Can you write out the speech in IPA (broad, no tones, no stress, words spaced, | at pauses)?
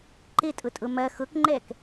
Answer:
ǃɪtʼʊtʼʊ mɐ xʊkŋ͡ǃɛk